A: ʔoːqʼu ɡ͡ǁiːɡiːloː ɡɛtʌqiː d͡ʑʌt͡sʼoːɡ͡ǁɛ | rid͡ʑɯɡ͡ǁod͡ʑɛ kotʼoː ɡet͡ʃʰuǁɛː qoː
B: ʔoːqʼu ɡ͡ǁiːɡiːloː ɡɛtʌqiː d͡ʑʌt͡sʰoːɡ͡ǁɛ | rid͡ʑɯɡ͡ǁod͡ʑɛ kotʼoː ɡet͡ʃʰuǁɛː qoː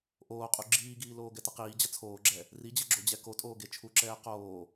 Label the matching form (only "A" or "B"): B